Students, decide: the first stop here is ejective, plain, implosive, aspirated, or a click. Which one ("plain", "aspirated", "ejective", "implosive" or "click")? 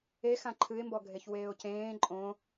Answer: click